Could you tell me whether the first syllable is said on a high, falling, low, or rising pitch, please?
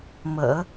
low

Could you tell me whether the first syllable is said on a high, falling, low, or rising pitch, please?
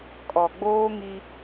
low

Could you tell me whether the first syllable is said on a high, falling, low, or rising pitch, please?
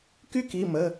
high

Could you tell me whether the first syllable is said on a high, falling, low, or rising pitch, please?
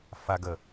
low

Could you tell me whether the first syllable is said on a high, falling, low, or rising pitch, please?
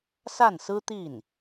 falling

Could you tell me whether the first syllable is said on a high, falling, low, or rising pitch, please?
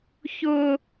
high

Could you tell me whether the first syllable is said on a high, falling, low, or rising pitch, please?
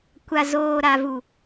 low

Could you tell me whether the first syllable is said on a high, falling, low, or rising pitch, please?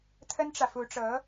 high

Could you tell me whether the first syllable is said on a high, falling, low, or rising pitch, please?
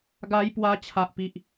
high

